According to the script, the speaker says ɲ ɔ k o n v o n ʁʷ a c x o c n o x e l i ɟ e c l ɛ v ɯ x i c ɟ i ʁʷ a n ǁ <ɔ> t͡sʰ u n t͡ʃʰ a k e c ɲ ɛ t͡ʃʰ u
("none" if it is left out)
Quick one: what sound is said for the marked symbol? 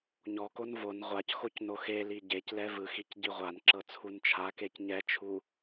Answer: ɤ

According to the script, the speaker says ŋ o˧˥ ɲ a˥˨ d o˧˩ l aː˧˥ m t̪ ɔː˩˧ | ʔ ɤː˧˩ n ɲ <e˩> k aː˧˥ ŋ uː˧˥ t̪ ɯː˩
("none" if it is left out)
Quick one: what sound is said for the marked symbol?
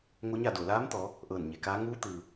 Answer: e˩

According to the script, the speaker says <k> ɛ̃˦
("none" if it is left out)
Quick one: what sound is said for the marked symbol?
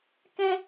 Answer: k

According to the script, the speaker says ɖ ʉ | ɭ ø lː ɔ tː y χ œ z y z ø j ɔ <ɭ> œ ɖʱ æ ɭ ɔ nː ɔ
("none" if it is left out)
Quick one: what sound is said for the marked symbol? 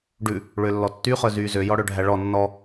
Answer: ɽ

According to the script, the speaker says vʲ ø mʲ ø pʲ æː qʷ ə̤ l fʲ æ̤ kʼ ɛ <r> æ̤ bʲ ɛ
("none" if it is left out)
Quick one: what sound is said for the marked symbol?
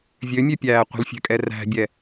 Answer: r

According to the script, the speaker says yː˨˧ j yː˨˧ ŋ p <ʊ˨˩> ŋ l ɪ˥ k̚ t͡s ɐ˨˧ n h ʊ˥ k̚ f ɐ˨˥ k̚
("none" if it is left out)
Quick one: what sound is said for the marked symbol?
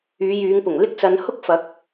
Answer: ʊ˨˩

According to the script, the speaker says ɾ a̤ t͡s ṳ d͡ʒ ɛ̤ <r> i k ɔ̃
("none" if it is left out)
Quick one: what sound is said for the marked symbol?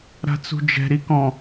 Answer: ɾ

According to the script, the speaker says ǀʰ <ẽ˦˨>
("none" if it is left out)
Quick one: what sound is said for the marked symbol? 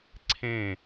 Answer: ẽ˦˨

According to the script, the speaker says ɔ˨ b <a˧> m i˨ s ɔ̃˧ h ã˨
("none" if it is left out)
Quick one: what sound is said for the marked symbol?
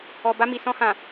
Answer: a˧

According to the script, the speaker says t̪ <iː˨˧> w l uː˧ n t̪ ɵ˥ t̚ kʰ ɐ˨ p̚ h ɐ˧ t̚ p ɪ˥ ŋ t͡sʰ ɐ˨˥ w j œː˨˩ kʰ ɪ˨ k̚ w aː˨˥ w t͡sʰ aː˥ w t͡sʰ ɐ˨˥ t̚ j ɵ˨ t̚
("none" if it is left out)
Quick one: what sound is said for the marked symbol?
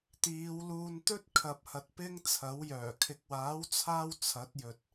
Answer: iː˨˧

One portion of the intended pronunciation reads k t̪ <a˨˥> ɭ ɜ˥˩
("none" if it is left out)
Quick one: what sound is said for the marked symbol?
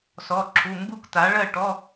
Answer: a˩˧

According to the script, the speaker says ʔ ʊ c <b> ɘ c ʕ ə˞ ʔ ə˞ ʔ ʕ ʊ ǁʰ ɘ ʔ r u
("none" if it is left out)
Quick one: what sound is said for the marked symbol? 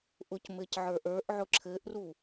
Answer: m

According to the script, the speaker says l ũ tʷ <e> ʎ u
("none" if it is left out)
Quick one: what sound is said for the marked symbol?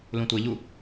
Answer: e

